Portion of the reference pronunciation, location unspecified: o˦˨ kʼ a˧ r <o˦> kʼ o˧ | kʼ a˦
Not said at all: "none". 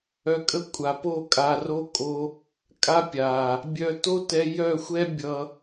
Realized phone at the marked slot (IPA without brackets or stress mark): o˦